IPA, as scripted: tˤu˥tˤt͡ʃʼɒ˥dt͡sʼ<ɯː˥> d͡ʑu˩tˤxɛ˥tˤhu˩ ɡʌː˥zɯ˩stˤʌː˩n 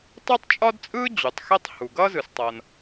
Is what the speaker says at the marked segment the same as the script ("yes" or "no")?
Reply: yes